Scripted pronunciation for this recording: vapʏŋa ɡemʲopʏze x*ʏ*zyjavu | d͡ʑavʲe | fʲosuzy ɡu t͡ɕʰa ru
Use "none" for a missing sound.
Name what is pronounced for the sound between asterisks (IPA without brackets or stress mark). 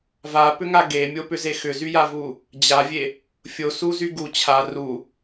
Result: ʏ